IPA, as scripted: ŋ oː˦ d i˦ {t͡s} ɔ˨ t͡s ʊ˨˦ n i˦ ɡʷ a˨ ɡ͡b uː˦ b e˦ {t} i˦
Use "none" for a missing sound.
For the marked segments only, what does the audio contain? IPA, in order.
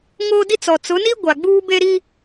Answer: t͡s, ɾ

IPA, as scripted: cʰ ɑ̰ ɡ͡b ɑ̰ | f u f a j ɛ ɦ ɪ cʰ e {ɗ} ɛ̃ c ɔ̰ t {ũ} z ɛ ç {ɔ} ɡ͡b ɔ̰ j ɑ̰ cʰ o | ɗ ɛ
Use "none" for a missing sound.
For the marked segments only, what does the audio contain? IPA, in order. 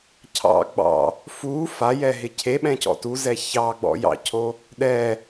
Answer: ɓ, u, ɑ

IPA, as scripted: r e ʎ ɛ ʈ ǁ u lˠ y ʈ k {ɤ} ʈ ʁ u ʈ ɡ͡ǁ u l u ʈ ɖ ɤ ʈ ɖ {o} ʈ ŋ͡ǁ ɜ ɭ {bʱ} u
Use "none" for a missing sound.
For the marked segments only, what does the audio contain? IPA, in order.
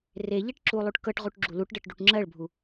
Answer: ɤ, u, bʱ

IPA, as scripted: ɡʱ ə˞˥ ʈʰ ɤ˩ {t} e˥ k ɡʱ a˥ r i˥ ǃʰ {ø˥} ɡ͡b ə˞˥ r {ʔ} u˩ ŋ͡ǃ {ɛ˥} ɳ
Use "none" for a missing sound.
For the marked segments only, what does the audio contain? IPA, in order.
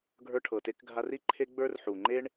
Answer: t, e˥, ħ, e˥

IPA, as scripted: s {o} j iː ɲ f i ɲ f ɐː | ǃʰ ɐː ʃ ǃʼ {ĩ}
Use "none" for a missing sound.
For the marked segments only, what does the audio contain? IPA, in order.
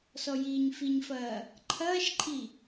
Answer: ɔ, i

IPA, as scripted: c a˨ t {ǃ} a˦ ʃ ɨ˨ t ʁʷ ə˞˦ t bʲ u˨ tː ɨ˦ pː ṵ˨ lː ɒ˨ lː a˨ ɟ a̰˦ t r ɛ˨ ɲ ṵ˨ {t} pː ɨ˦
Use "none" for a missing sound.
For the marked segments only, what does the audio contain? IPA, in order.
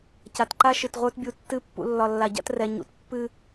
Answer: ǃ, t

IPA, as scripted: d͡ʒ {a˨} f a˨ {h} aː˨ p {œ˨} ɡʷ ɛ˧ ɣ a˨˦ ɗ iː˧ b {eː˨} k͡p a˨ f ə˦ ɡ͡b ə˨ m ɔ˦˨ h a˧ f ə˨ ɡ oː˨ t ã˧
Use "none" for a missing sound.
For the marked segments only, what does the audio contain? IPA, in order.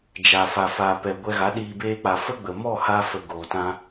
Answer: a˨, f, ɛ˨, eː˧

